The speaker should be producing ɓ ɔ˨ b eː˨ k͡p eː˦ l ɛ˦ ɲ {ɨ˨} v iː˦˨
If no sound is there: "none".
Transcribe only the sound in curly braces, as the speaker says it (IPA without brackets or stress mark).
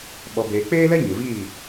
ɨ˨